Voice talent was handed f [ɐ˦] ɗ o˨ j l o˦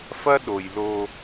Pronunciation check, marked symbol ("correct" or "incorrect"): correct